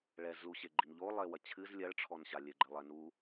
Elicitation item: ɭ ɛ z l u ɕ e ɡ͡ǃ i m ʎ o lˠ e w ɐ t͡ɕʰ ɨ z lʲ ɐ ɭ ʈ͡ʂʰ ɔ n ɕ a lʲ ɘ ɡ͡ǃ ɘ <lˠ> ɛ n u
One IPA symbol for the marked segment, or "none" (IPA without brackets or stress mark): lˠ